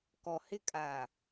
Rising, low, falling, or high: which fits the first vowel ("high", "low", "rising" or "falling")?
low